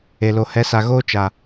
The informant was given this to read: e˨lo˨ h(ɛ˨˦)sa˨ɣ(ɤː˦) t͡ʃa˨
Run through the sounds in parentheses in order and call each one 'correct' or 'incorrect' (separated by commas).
correct, incorrect